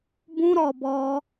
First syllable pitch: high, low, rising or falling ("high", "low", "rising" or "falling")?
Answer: high